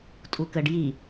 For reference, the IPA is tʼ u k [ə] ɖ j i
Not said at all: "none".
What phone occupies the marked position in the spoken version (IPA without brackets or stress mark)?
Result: ə